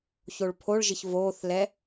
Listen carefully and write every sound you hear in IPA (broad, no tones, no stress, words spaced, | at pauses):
çoɭpʰoɭʒɪç voːθlɛ